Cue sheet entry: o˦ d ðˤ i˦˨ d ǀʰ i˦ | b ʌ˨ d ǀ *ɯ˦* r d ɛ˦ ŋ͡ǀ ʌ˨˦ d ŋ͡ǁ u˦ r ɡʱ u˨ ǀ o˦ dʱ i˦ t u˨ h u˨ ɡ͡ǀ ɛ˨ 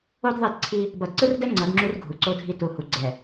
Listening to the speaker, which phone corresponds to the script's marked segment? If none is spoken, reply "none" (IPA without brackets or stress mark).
ɯ˦